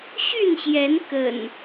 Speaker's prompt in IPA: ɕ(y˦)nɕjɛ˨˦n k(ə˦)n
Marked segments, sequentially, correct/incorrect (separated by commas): incorrect, incorrect